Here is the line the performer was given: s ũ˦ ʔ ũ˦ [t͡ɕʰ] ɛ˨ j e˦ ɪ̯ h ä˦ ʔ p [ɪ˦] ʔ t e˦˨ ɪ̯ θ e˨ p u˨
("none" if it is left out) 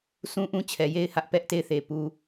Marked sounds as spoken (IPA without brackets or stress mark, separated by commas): t͡ɕʰ, ɛ˦